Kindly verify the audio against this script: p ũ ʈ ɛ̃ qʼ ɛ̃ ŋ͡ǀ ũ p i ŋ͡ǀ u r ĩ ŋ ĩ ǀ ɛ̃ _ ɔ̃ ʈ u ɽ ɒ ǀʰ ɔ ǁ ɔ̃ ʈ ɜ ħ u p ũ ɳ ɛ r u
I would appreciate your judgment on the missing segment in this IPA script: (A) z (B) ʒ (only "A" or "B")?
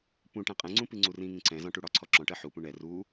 A